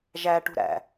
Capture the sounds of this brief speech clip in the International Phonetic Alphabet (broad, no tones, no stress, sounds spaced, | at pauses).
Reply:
ʒ æ ʈ ṳ ɾ æ̰